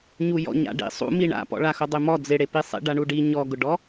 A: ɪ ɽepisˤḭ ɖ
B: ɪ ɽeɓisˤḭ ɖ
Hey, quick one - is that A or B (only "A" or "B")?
A